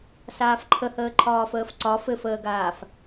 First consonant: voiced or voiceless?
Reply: voiceless